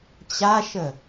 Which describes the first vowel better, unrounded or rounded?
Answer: unrounded